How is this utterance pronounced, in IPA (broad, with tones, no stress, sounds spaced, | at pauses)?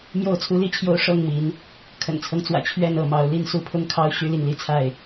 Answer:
m j o˥˨ ʊ̯ t͡sʰ u˦ l i˥˨ t͡ɕʰ j o˦ ʊ̯ ʂ ɤ˥˨ ŋ m i˨˦ n | kʰ ə̰˨˩ n t͡sʰ ɤ˦ ŋ t͡s w ä̰˨˩ t͡ɕʰ ɥ ɛ˥˨ n ɤ˥˨ m ɑ˨˦ ʊ̯ l i˥˨ n s u˥˨ pʰ ʊ˦ ŋ kʰ ɑ˦ ʊ̯ ɕ y˦ l i˨ ŋ l i˦ t͡sʰ a˥˨ ɪ̯